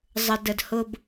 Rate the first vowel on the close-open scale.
mid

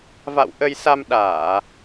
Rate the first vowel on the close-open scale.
open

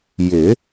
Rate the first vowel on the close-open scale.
close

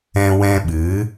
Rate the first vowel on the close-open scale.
mid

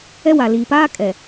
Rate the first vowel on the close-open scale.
mid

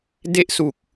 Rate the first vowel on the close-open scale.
mid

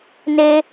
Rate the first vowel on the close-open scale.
mid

